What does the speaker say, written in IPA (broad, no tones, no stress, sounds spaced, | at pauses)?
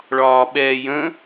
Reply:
ɭ ɒː ɓ ɛː j ə̃